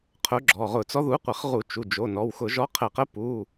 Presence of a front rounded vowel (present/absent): absent